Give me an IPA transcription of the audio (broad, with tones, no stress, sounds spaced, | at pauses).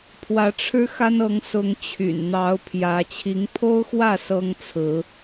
pʰ w ä˨˦ ʈ͡ʂʰ ɻ̩˦ x a˦ n ɤ˨˦ ŋ s ʊ˨˦ ŋ t͡ɕʰ y̰˨˩ n n̪ ɑ˨˦ ʊ̯ pʰ j ä˨˦ t͡ɕʰ i˨˦ ŋ pʰ o˦ ʊ̯ x w ä˥˨ s ɤ˦ ŋ t͡sʰ ɹ̩˨˦